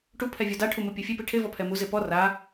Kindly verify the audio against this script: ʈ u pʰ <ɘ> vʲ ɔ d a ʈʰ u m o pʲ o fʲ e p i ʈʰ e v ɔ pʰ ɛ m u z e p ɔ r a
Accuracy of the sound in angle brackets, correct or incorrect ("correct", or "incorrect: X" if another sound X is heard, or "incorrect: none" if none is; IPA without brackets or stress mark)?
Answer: incorrect: ɛ